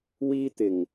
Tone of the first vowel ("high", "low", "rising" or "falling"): high